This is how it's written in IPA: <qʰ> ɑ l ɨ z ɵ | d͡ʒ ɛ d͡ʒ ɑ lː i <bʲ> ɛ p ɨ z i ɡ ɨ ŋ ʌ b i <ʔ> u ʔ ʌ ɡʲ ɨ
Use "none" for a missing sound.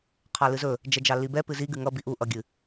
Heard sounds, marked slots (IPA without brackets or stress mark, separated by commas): qʰ, b, ʔ